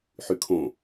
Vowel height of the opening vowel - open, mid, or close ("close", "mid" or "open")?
close